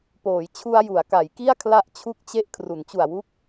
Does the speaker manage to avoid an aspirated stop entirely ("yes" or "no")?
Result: no